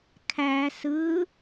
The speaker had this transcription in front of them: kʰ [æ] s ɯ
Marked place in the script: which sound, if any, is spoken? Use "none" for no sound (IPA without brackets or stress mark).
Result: æ